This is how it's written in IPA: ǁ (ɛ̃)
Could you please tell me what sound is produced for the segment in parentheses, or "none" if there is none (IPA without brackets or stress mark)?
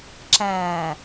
æ̃